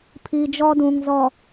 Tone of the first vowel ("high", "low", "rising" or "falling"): low